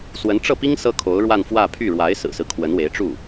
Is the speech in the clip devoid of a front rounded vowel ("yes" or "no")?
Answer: no